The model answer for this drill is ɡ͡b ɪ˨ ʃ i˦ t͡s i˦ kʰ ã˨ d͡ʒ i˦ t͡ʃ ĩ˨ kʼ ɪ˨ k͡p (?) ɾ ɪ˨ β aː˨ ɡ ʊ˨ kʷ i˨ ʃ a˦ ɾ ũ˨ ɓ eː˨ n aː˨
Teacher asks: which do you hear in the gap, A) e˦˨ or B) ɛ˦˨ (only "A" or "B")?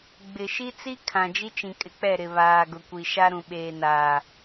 B